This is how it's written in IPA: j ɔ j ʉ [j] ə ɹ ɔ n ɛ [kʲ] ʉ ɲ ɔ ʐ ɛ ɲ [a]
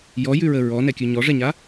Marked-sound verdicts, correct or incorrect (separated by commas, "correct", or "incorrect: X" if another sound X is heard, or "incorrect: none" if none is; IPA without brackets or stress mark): incorrect: ɹ, correct, correct